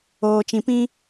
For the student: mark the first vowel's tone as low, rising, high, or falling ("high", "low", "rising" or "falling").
low